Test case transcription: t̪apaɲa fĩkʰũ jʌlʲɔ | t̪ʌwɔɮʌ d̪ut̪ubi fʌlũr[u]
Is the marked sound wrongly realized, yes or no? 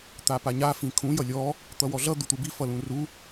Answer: no